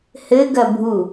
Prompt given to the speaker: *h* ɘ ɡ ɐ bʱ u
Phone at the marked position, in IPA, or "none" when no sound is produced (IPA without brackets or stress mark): h